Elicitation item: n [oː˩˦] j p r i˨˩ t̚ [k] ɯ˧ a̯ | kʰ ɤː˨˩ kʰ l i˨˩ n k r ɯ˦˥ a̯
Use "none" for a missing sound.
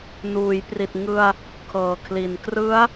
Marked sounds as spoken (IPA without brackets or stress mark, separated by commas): uː˩˦, ŋ